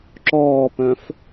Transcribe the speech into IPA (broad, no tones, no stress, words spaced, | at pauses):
ǁɔːpœ̃f